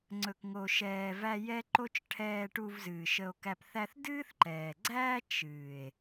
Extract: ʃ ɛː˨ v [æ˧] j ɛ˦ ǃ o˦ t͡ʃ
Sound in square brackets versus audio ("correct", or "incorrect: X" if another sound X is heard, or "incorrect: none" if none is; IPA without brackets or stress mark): correct